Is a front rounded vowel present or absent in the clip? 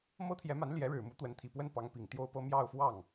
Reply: absent